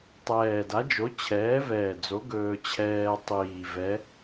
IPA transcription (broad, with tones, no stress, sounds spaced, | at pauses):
tˤ ɛː˨˩ d a˨˥ d͡ʒ o˨˥ t͡ɕʰ ɛː˨˥ v ɛː˨˩ d͡z o˨˥ ɡ ɵː˧ t͡ɕʰ ɛː˧ tˤ iː˨˩ v ɛ˨˥